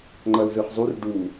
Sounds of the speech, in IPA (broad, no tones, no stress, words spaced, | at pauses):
ŋ͡ǃʌlzɯχzˤur ɖu